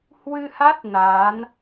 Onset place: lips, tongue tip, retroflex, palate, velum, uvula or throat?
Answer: throat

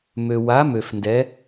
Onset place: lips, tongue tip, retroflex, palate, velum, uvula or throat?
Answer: lips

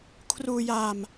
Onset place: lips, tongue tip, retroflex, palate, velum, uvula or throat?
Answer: velum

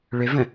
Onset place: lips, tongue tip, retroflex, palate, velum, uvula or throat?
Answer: retroflex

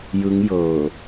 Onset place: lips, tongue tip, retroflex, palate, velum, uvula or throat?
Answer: palate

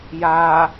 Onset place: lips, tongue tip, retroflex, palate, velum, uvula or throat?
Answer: palate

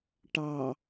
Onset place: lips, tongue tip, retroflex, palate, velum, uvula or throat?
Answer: retroflex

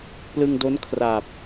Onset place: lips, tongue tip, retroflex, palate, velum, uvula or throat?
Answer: lips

